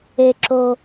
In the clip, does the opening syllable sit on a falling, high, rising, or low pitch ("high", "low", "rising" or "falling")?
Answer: low